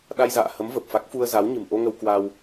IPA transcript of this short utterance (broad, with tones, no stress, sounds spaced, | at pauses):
ɗ a˧ j z a̰ː˧˨ h ə˨˦ m v ə˨˩ p̚ f a˦˥ k̚ f u˧ ə̯ z a˨˦ w ɲ ɨ̤˨˩ m ʔ o˧ ŋ ə˧ w k w a˧ w